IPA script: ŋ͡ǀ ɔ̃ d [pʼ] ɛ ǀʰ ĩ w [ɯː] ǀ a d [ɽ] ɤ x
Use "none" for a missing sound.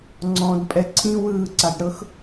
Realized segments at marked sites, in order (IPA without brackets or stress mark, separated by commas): pʼ, ɯː, ɽ